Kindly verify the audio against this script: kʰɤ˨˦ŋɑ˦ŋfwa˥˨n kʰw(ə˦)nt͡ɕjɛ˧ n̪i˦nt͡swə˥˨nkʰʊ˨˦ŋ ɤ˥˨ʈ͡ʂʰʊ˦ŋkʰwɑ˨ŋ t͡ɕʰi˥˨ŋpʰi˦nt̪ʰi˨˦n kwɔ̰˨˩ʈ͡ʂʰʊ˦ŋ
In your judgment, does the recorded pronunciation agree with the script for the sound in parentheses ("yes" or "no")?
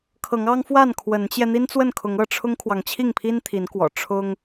no